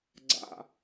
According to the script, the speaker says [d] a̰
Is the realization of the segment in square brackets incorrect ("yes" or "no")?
yes